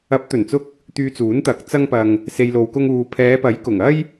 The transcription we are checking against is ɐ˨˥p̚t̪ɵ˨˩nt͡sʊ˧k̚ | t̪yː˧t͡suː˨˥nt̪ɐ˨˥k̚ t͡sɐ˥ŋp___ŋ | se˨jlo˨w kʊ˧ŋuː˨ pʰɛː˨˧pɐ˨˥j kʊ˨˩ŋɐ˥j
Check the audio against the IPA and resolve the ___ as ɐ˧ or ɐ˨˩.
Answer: ɐ˧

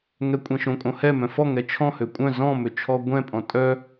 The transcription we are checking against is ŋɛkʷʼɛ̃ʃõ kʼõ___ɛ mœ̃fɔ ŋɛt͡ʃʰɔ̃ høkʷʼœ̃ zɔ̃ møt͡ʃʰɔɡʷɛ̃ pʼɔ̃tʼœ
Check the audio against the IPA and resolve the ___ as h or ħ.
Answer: h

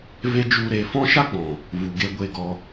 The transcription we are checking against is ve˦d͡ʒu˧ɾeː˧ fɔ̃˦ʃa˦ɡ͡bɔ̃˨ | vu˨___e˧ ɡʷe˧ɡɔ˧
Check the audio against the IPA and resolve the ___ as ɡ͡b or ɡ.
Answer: ɡ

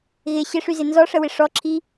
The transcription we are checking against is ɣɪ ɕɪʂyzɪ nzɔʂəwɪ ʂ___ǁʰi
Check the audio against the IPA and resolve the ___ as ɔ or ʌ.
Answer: ɔ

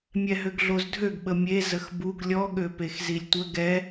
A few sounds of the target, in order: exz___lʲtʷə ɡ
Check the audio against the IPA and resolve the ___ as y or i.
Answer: i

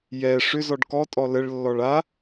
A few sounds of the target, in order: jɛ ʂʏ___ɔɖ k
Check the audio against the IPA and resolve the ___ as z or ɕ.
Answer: z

